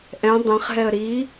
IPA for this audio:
ʔɛ̃ dˤɛ̃χɦɛə̯ ɾi

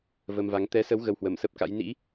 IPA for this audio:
və˧mva˨˦ŋ t̪ɛ˨˦sə˨˦w ɣə˧whwə˧˩msə˦˥p̚ka̰˧˥j nḭ˧˥

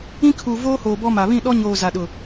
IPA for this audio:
ĩ˦kʰuː˨ voː˦hoː˨bɔ˦ma˨ βĩ˦˨ɗɔ˦ɲoː˨ za˨ɗʊ˨

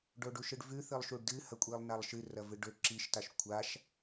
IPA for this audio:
ɖoɖuʃɨɖvʉ θɨlˠʃuɖdɨ hɐkʷʼilˠnalˠʃɨ rɐvɨɖɵ ǁiʃtaʃ kʷʰaʃ

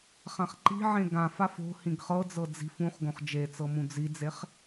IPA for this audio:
χãχǃi̤ʕẽ ɡãfaf o̤ hĩɡχɤd͡zɤ d͡zi̤f ũχ ɡõχd͡ʒet͡sɤ mũd͡zid͡zeχ

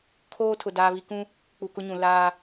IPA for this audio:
kʰoː˦tʰʊ˨ daː˦βi˦ kũ˦ | k͡pu˨kʊ˦ɲũ˨ laː˦

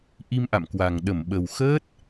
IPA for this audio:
ʔi˧mʔa̰˧˨mkwa˨˩ŋ ɗə˧˩mɓə˨˩wxəː˦˥t̚

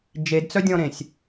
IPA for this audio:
d͡ʒedt͡sœdʲɔ̃ɾẽsʲ

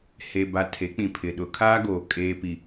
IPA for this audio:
he˨ba˨ tʰe˨˦k͡pĩ˨pʰɪ˨ ɗʊ˨˦kʰaː˦ɡoː˨ kʼeː˨pi˨

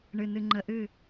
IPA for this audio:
ɳɨ˨nɨ˨ ŋ͡ǃə˨ʔɨ˦˨

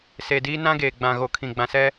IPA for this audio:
se˨diː˦ nã˦ɡeː˨ɡ͡bã˨ ɣo˨kʰĩ˨ ɡ͡bã˨sɛ˦

